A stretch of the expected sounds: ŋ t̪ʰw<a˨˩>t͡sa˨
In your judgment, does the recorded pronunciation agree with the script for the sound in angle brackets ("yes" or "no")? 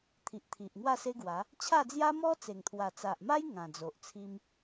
yes